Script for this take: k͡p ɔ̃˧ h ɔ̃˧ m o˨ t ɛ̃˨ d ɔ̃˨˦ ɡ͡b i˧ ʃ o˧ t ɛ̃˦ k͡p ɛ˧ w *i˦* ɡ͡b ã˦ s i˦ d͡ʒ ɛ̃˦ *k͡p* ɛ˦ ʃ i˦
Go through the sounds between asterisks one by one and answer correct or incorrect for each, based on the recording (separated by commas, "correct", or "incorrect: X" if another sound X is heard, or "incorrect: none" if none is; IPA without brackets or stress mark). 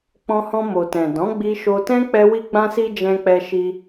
incorrect: i˧, correct